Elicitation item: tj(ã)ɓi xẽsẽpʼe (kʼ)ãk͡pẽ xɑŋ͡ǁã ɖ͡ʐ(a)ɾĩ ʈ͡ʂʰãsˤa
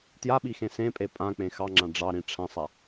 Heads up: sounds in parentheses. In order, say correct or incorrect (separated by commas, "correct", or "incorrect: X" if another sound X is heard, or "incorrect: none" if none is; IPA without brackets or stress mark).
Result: incorrect: a, incorrect: pʼ, incorrect: ɑ